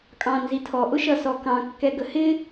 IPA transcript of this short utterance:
kʼɑ̃nzitʰɔ ʔʊʃʌsɔkɑ̃ kːɛɡəhɪ

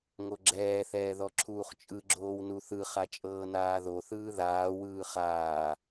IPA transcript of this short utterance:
ŋoɡ͡ǁɛːθɛː ðɔǁʰuːχt͡ʃʼɯɡ͡ǁoːw nuθɯχa t͡ʃʼɤːnaːðoθɯː ðaːwɯː χaː

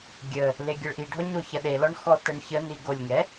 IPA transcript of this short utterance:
ɡʲə | leɡʲəɭʔiɖʱɔ ɲoçɐɗelɔɳ xɔtəɳçəni ɡolʲŋɛ

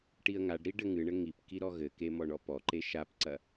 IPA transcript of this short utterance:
ʈiə̯ŋaɖɾi ɖɘŋɨɳɘ ŋipki ɾɔɣɘke mɔɳɔpɔǃe ʃapǀɐ

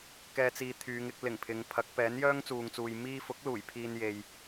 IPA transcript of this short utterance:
kɛː˨t͡siː˨ t̪ʰyː˨˧ŋɪ˧k̚lɪ˨˩ŋ pʰɪ˨˧ŋpʰɐ˨˥k̚ pɛː˨˥njœː˥ŋt͡suː˨ŋt͡suː˨j miː˧fʊ˨˥k̚ luː˨˩jpʰiː˧n je˨j

